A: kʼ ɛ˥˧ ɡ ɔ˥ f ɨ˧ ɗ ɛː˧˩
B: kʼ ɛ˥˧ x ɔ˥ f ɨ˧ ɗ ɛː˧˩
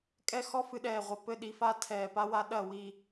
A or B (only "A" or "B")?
B